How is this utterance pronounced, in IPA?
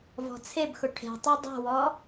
vɔ̤t͡sʰebxʊ ʈʰe̤ tˤudˤɛ̤wɔ

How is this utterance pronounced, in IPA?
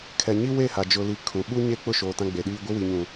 kʰɛ˨ɲi˦we˦˨ha˨ d͡ʒʊ˨li˨ kʰũ˨ ɓu˦ɲe˦ k͡pʊ˦˨ʃoː˨ tã˦ɡ͡be˨ɗiː˦ ɡʷɪ˦wi˨ɲũ˨

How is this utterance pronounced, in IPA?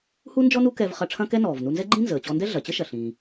hu˥nd͡ʒɔ˥ nu˥kɛ˧vχɐ˧ ʈ͡ʂʰɐ̃˥kɛ˥nɔː˩v nu˧nzɛ˥ɡ͡ǃĩ˥ nzəː˩t͡ɕɔ˧ndɛ˥ ɮɐ˩t͡ɕə˥ʃɐ˩ ɬĩ˩

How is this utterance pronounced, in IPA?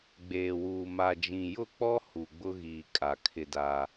ɡ͡beː˨wuː˨ ma˨d͡ʒĩ˨jʊ˦˨k͡pɔ˦ hu˨ɡ͡bʊ˦ɣiː˨ kʼa˨kʰɪ˦da˦

